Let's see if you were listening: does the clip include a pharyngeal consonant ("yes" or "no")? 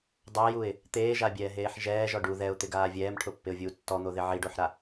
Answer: yes